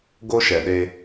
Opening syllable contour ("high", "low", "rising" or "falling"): high